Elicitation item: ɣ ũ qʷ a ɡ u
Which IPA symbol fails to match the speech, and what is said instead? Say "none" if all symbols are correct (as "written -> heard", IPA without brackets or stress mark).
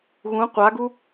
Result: none